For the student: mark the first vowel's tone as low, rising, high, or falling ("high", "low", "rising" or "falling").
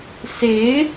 rising